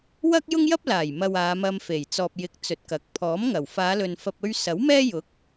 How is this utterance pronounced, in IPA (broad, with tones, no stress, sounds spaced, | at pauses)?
w ɐ˥ k̚ j ʊ˥ ŋ j ɐ˥ p̚ l aː˨˩ j m ɐ˨ w aː˨˧ m ɐ˧ m f e˨˩ j t͡s ɔː˨ p̚ j ɪ˨˥ k̚ t͡s ɵ˨ t̚ k ɐ˨˥ k̚ pʰ ɔː˨˥ m ŋ ɐ˨˩ w f aː˨˧ l ɵ˨ n f ɐ˨ p̚ ɵ˧ ɥ s ɐ˨˥ w m ɛː˥ j ʊ˨˥ k̚